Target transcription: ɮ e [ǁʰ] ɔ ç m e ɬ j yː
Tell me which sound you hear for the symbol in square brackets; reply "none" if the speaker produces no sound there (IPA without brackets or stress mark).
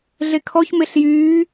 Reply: kʰ